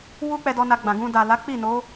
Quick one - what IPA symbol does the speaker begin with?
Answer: w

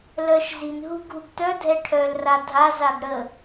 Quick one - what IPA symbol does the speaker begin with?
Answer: l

